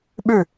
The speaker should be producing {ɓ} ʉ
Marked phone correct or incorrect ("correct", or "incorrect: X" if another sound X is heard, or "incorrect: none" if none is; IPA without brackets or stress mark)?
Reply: correct